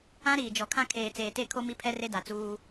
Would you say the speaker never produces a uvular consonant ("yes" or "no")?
yes